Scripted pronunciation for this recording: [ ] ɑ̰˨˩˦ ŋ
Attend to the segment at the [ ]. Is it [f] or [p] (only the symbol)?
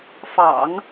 f